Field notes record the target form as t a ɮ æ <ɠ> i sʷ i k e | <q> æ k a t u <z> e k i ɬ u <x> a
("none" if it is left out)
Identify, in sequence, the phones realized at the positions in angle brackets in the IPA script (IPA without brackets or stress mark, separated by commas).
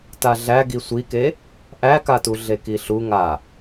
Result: ɡ, ʔ, ɮ, ŋ